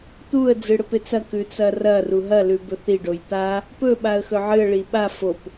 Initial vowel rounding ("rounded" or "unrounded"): rounded